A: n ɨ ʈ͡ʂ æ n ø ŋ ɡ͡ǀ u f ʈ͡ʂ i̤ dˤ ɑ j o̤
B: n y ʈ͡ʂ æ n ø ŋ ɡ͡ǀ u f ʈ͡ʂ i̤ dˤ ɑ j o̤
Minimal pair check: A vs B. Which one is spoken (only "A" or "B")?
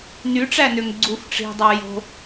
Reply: B